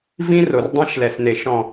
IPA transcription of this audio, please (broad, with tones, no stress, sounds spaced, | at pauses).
v ĩ˦ r o˨ r dˤ ɛ̃˦ ʃ l ɛ˨ s n e˨ ʃ ɔ̃˨